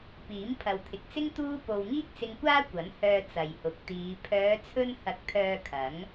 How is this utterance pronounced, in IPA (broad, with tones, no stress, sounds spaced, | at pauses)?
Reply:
p iː˨˥ m pʰ ɐ˨ w t̪ʰ ɪ˨ k̚ t͡s ɪ˥ ŋ t̪ uː˥ p o˧ w ŋ iː˥ k̚ t͡s ɪ˧ ŋ kʷ aː˥ kʷ ɐ˨˥ n h œː˧ t͡s ɐ˨ j h ʊ˨˥ k̚ t̪ iː˨˧ pʰ œː˨˧ t͡sʰ ɵ˧ n h ɐ˨˥ k̚ t̪ʰ œː˧ kʰ ɐ˨˥ ŋ